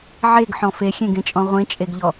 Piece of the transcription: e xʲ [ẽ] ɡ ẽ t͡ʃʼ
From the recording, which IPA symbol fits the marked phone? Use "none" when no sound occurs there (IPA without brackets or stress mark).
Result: ẽ